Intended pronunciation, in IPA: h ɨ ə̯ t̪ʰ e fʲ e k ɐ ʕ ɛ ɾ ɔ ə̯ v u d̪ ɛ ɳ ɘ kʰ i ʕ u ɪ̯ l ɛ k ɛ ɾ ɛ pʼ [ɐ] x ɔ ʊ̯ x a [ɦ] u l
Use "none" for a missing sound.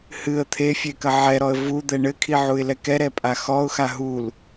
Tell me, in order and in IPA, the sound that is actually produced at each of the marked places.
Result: a, ɦ

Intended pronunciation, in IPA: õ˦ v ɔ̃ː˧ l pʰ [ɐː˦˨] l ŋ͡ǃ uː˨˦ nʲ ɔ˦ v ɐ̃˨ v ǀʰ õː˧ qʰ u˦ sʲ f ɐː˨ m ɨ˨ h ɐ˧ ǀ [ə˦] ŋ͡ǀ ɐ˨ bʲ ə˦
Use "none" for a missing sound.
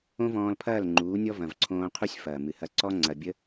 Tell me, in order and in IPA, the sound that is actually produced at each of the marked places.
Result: ɐː˦˨, ɔ˦

